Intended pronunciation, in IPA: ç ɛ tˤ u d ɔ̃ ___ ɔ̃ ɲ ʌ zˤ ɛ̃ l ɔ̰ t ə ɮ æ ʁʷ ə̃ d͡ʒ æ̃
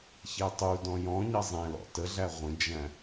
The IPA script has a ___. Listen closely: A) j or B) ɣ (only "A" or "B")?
A